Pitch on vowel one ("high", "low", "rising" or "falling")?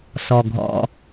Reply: low